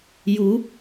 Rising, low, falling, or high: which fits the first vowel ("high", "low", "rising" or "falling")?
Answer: rising